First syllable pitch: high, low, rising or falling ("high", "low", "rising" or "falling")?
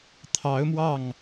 rising